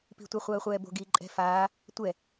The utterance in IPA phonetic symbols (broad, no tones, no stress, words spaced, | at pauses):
pi̤tʷɛ χʷɜːχʷɛːbo̤ ɡiːǃʼɛ̤ faː | tʷɛ